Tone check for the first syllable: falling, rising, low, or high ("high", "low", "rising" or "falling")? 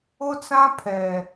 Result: high